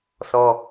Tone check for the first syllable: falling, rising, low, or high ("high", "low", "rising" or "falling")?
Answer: high